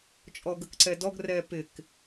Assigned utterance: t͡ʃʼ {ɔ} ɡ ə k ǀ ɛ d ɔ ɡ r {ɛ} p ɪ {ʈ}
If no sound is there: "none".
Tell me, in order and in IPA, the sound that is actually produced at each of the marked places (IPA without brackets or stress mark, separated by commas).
ɔ, ɛ, k